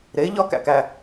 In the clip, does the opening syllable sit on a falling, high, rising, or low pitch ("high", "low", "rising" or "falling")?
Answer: rising